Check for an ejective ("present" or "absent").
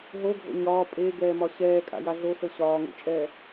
present